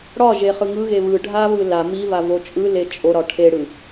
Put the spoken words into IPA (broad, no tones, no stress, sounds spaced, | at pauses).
ɽ ɒ ʒ e χ ɯ ŋ ɯ ɣ e β ɯ ɖʱ a β ɯ l a m i v a v o t͡ʃʼ ɯ l e t͡ʃʼ o ɾ ɒ ʈʰ e ɽ ɯ